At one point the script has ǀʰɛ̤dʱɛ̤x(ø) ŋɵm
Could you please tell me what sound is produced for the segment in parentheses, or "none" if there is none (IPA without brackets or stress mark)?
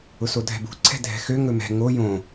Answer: ø